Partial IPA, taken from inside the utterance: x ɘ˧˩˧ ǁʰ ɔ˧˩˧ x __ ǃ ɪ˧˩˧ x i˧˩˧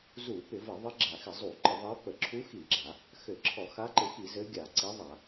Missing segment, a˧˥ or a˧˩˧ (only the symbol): a˧˥